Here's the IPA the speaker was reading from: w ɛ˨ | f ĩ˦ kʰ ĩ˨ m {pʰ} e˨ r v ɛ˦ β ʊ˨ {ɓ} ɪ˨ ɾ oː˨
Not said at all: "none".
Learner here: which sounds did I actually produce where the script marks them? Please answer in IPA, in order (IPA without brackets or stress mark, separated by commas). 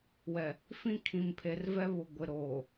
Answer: pʰ, ɡʷ